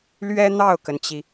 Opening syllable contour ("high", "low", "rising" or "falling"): high